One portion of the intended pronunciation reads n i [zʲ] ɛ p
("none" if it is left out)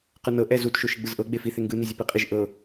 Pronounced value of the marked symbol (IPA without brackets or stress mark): zʲ